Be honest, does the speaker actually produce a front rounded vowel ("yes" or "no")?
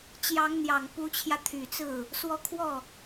yes